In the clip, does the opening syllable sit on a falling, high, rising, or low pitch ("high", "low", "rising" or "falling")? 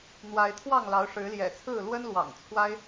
rising